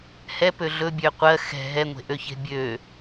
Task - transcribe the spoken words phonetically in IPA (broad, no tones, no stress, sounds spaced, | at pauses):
h ɛ p ø ɮ ɵ bʲ ø qʷ ɜ x ɛ̤ ɦ ɛ ŋʷ e̤ ʔ ø ç e̤ bʲ ø